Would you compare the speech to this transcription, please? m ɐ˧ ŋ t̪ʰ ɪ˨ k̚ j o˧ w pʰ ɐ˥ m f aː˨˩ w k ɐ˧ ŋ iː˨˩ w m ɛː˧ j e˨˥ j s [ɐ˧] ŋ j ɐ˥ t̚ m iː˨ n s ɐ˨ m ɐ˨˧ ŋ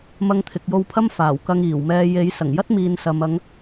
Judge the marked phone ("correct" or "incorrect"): incorrect